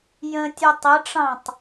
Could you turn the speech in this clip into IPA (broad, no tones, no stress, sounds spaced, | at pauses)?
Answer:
j ə̃ tʲ ʊ tˤ ə ʈ͡ʂ ɑ̃ tˤ